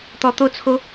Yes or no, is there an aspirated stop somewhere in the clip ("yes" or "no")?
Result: yes